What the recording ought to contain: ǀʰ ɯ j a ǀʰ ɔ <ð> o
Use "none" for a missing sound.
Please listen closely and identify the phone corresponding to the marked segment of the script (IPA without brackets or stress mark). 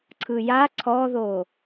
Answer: ð